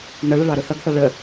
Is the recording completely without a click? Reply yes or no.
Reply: yes